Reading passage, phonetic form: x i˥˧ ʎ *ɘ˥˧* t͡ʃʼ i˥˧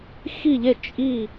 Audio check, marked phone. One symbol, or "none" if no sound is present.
e˥˧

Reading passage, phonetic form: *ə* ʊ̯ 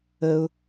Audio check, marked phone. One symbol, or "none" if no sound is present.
ə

